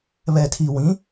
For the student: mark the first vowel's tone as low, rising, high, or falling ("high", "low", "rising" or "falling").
low